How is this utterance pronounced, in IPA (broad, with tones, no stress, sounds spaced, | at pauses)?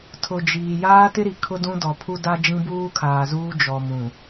tʰ ʊ˨ d͡ʒ iː˨ j aː˦ t ɪ˦ ɾ i˨ kʰ ʊ˦ d ũ˦ d ɔ˨ pʰ u˦ d a˦ d͡ʒ ĩ˦ b uː˦ kʰ aː˨ z uː˦ d͡ʒ ɔ˨ m ũ˨